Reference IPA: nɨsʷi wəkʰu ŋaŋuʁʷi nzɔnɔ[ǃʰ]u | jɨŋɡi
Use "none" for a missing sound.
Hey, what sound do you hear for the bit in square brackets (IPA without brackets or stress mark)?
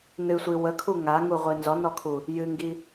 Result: kʰ